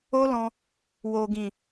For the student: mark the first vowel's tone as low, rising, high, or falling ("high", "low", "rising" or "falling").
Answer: high